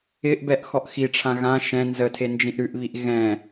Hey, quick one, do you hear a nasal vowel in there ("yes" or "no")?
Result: yes